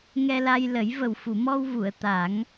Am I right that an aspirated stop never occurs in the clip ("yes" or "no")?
yes